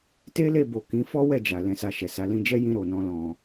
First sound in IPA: t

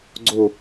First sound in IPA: ɡ͡ǀ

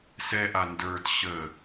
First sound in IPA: s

